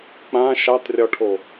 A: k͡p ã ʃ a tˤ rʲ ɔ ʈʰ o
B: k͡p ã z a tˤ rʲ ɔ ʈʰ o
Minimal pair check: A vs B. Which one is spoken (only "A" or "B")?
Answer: A